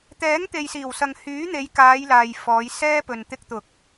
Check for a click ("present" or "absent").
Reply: absent